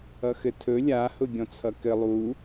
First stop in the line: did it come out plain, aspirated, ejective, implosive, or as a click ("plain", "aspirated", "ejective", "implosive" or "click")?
aspirated